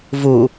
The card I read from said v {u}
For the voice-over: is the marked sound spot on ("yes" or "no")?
yes